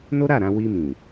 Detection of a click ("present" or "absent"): absent